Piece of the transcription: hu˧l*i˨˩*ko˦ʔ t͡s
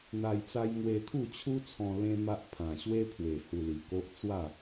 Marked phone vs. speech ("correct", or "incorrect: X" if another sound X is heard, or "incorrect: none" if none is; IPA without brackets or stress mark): correct